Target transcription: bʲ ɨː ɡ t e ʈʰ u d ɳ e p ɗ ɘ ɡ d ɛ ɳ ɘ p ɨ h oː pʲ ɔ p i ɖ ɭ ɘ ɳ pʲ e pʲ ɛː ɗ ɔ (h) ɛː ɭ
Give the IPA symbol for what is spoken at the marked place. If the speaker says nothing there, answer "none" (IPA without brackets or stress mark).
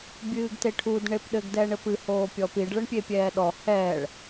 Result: h